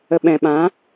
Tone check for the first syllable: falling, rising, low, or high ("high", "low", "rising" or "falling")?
low